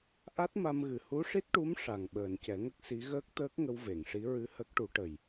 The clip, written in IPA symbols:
ʔ a˦˥ t̚ m a˧ m ɣ ɨ˨˩ h u˧˥ ʂ i˦˥ t̚ ʈ u˧˥ m ʂ a˨˩ ŋ ɓ əː˨˩ n c ɛ˨˩˦ ŋ ə˦˥ k̚ s i˧˥ ɣ əː˦˥ k̚ t̪ əː˦˥ k̚ ŋ ə˧ w v e˨˩˨ ŋ ʂ i˧˥ ɹ ɨ˧˥ h ə˦˥ k̚ ʈ u˧˥ ʈ ə˨˩ j

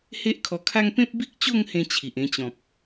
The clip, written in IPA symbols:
h e˦ ʔ kʰ ɔ˧ kʰ a˦ ŋ p ẽ˦ p̚ b i˦ k̚ t͡ɕ o˥˧ ŋ h ẽ˥˧ t͡ɕʰ i˨ ʔ ẽ˧ t͡ɕ ɔ̃˨ p̚

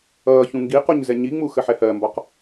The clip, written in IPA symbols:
ʌː ç ũ ŋ ɡ i q u ɲ z ɛ ɲ i ŋ͡m u x ə ħ ɛ h ɜ m b ɒ q

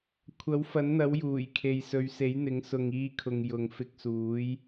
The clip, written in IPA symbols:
kʷʰ ɐ˨˥ w f ɐ˨˥ n n̪ ɐ˨˥ w j uː˨˩ j kʰ e˨ j s ɵ˨˧ ɥ s e˨˥ j n̪ ɪ˨˥ ŋ s ʊ˨ ŋ iː˧ kʰ ʊ˨ ŋ j ʊ˨ ŋ f ɪ˧ k̚ s uː˨˥ j

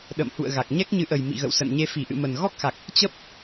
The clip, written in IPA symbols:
ɗ ə̰˧˨ m h ṵ˧˨ ə̯ ɣ a˨˩ k̚ ɲ ɛ˦˥ k̚ ɲ ɨ˨˦ ʔ ə˨˩ j m ḭ˧˨ ɣ ə̰˧˨ w s ə̰˧˨ n ɲ e˧ f i˧˩ ʔ ɨ̰˧˨ m ə˨˩ n ɣ ɔ˦˥ k̚ x a˨˩ k̚ | t͡ɕ ə˦˥ p̚

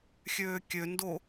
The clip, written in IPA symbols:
xʲ øː kʲ ø n d o

